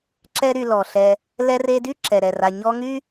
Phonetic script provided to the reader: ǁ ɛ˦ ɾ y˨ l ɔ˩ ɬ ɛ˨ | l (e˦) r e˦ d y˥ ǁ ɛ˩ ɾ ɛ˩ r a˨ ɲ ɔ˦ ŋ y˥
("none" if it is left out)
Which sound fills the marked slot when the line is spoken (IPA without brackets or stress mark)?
ɛ˦